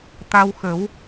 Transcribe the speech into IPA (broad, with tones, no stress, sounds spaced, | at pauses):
t̪ a˧ w x ə˨˩˦ w